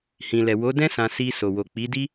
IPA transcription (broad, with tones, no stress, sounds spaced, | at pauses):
h ĩ˨ l ɛ˨ w o˨˦ d ɛ̃˦ s ã˧ s i˧ s o˨ w o˨ k͡p i˨˦ d i˦